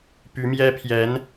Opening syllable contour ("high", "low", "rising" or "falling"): rising